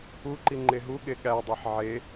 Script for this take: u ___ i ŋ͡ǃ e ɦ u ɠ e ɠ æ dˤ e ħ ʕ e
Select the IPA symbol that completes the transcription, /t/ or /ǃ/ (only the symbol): ǃ